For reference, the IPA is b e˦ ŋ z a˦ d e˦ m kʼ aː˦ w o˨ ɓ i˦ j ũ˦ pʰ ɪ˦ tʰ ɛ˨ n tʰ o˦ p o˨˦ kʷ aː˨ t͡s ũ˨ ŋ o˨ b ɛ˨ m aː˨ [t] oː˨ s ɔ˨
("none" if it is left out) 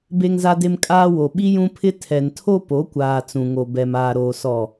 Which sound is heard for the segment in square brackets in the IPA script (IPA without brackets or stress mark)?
ɾ